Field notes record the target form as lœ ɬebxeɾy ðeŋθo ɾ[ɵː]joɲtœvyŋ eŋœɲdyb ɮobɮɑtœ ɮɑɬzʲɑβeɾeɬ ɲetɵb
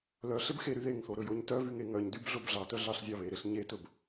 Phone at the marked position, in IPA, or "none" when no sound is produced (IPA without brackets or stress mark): ɵ